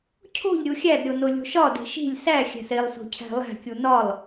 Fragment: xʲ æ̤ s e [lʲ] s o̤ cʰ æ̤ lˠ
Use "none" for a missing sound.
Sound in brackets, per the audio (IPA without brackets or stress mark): lˠ